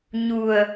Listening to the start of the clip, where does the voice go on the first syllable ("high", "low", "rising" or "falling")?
low